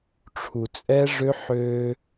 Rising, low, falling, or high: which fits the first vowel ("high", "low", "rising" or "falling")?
low